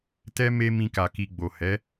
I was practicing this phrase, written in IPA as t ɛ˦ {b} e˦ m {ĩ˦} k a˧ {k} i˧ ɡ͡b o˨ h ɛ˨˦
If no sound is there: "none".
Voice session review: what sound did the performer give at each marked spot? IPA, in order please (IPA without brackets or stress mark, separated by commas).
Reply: m, ĩ˦, k